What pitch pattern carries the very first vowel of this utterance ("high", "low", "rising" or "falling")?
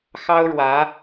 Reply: high